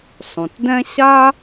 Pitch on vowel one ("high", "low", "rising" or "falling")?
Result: low